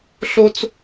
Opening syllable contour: high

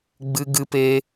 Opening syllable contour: high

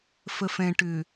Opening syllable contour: low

